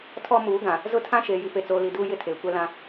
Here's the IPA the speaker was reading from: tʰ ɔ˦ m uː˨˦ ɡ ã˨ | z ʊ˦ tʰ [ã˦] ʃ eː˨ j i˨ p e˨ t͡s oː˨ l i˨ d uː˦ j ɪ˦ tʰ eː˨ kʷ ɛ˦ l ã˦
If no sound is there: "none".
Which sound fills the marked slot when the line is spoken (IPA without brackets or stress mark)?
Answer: ã˦